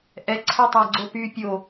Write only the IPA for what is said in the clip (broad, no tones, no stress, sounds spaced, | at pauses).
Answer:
ʔ ɛ ǀʰ ɛ tˤ a ɡ͡ǀ o p y pʲ o